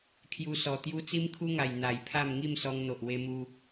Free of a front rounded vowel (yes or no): yes